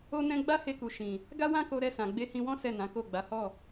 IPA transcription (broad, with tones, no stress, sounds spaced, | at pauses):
o˦ n ɛ̃˦ ɡ͡b a˦ h e˧ k u˨ ʃ ĩ˨ | ɡ a˦ w ã˦ k o˧ ɾ ɛ˧ s ã˨ ɡ͡b e˧ h ĩ˧ w ɔ̃˦ s ɛ˦˨ n ã˨˦ k o˦˨ ɡ͡b a˨˦ h ɔ˦˨